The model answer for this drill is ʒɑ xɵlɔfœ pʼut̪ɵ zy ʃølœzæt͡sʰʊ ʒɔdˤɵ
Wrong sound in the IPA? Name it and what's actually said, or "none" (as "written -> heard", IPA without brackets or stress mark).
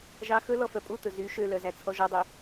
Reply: ʊ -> ɔ